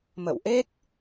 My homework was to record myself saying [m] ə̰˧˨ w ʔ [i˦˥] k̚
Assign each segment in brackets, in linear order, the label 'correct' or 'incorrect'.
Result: correct, incorrect: e˦˥

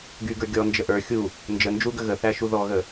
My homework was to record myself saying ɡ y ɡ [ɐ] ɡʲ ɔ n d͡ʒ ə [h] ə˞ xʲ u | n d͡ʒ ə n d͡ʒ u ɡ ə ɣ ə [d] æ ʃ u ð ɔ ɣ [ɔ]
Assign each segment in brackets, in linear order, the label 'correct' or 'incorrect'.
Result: incorrect: ə˞, incorrect: ʔ, incorrect: θ, incorrect: ə

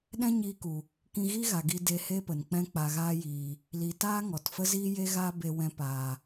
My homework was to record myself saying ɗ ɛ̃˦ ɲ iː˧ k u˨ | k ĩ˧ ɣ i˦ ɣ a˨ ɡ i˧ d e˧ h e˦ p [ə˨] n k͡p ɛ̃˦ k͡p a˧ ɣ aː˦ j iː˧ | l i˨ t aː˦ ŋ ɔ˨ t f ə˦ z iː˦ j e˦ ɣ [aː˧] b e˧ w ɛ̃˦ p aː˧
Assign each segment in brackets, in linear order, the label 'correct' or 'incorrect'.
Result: correct, incorrect: aː˦

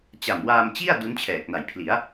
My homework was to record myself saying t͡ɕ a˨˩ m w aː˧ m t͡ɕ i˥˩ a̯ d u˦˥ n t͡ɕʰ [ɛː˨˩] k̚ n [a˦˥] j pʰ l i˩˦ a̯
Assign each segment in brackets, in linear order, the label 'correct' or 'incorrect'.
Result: correct, incorrect: a˨˩

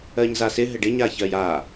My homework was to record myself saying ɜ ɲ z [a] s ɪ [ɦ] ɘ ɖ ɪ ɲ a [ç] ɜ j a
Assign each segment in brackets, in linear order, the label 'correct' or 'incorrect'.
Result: correct, correct, correct

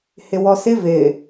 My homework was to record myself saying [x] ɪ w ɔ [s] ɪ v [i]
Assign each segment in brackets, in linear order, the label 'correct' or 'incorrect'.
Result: incorrect: h, correct, incorrect: ɪ

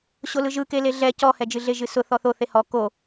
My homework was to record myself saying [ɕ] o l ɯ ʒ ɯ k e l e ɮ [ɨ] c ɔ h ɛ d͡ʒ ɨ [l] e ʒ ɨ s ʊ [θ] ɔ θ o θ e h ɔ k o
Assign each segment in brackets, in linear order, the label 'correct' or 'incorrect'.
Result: correct, incorrect: ɛ, incorrect: ɮ, correct

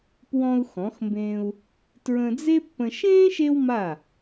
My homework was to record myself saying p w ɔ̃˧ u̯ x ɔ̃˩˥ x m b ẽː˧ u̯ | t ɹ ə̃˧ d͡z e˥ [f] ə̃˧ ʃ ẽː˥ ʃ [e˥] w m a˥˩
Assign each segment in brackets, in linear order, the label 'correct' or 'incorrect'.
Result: incorrect: pː, correct

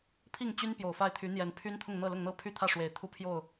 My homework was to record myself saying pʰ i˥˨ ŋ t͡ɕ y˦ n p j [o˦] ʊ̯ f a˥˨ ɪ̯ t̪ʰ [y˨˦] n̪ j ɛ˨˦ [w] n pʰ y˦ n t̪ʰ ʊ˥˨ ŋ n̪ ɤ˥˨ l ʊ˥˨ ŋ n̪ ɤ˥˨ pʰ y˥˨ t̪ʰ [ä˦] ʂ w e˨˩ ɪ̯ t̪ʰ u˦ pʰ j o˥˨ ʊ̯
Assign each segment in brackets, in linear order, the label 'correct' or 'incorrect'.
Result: incorrect: o˨˩, correct, incorrect: none, incorrect: ä˥˨

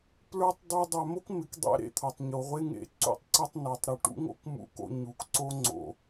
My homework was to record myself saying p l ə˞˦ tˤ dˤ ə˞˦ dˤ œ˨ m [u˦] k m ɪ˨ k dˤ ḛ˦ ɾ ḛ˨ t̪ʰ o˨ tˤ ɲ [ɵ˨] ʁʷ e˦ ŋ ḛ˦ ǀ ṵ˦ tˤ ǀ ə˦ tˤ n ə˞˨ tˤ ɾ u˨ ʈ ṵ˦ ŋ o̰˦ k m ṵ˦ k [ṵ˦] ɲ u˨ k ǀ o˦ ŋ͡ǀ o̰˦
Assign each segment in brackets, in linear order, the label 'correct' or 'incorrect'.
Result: incorrect: o˦, incorrect: o˨, incorrect: o̰˦

